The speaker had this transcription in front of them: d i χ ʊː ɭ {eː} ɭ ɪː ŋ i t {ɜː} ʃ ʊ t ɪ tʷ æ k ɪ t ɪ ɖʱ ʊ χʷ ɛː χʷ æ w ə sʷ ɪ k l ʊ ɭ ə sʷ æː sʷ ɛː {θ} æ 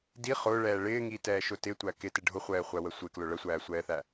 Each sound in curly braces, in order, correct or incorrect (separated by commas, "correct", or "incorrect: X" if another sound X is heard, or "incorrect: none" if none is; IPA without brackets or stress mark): incorrect: ɛː, incorrect: ɛː, correct